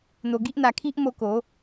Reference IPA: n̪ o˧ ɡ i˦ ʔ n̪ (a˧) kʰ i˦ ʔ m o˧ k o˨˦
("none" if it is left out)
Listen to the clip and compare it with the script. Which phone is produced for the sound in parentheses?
a˧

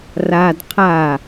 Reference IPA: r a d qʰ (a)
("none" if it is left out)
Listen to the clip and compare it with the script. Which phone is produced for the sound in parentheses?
a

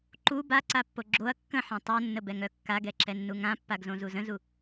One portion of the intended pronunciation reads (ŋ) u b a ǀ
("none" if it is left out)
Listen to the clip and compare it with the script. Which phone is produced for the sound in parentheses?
ǃ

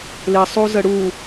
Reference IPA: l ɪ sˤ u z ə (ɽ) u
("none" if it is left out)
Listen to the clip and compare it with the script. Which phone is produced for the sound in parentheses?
ɽ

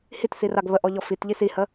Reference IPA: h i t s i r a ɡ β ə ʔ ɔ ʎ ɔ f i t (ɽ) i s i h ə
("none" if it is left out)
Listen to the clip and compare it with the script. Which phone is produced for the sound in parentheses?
ʎ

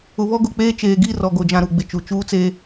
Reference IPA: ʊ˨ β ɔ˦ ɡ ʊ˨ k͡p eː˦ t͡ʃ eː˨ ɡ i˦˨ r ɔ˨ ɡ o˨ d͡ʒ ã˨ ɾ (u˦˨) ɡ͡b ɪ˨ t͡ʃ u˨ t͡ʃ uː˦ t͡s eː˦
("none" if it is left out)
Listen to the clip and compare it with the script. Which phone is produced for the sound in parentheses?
u˨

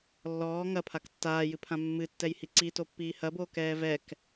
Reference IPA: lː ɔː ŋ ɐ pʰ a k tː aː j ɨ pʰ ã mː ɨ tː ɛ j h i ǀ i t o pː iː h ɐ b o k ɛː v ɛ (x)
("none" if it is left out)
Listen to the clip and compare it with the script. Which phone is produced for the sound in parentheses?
k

